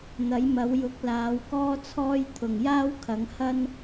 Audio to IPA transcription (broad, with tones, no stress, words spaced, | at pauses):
n̪ɐ˨˥jmɐ˨˥wjʊ˨˥k̚laː˨˥w kɔː˥t͡sʰɔː˥jt̪ʰʊ˨ŋ jaː˥wkʰɐ˨˧ŋ hɐ˥n